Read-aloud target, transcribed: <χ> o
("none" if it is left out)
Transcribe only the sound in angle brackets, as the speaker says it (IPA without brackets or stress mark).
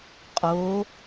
qʼ